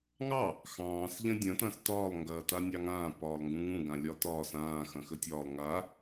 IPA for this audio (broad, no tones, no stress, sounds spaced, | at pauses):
ŋ ɑ | x ɑ̃ː s ʎ ɐ̃ dʲ ɐ̃ t ɐ̃ s t ɒː lˠ ŋ ɡ ɐː t a nʲ ɑ ŋ ãː p ɒː lˠ ŋ ɡ ũ ŋ ũ ɡ ã lʲ ɒ t ɒː s ãː x ɐ̃ x ə tʲ ɒː lˠ ŋ a